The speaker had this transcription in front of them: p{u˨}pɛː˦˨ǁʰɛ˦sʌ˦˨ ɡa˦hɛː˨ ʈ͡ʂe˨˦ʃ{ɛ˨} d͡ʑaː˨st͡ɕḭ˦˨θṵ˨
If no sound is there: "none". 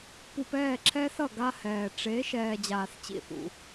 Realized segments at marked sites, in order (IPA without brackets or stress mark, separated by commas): u˨, ɛː˨